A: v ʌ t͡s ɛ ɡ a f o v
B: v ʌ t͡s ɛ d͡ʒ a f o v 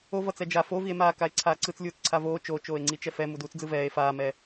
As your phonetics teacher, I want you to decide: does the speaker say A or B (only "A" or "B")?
B